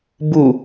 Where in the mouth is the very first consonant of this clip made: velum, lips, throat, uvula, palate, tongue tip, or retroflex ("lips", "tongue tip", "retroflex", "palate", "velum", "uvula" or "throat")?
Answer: lips